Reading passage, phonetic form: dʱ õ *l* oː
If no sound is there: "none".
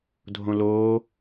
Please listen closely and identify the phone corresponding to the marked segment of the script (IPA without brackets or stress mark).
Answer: l